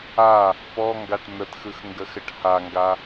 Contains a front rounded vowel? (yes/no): no